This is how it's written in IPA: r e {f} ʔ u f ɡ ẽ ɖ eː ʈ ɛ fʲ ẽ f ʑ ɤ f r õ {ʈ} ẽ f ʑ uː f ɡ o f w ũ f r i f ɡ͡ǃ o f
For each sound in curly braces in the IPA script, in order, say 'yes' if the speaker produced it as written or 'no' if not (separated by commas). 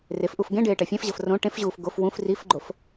yes, yes